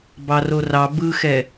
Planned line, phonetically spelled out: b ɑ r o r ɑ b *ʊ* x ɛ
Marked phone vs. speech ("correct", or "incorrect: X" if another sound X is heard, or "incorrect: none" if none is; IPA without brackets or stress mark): incorrect: ɯ